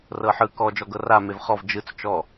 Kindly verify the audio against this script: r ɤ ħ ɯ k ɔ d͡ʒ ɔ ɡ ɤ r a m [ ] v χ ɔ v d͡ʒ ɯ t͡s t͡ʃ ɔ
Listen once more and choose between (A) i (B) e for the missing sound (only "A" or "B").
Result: B